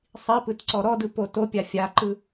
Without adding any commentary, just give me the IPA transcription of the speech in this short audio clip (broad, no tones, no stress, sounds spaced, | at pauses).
sˤ i p ɯ t ǀ ɔ ɾ ɔ d ɯ p o t o pʲ a fʲ a ǃ ɯ